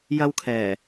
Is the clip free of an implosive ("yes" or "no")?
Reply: yes